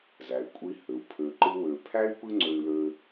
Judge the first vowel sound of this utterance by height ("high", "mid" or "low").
low